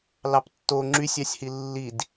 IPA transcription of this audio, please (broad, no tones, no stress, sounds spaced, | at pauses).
l ɑ p tː o ŋ͡ǁ y sʲ ɑ sʲ h i lː i d